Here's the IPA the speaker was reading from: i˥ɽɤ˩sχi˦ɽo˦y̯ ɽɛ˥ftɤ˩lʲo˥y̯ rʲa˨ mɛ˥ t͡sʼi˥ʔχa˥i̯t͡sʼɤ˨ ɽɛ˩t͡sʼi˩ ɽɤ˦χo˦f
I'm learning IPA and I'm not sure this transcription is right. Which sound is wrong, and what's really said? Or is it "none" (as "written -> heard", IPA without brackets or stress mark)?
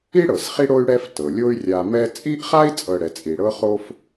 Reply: none